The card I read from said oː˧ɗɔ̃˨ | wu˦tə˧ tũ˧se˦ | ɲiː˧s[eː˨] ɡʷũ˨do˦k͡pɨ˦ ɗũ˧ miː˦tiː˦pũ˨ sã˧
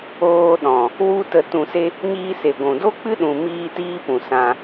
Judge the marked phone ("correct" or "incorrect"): incorrect